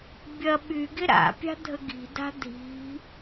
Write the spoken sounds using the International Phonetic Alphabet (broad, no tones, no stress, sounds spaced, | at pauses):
bʲ ɐ ɓ y ɡ ɪ ɾ a̰ pʲ a̤ dʱ ə ɡ i̤ d a̤ dʱ i̤